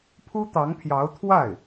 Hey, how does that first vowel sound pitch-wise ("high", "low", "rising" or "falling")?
high